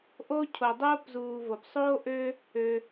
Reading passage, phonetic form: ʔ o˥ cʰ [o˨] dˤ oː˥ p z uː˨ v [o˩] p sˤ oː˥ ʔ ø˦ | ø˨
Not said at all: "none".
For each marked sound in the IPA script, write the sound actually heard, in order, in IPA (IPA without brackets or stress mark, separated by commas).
o˨, o˩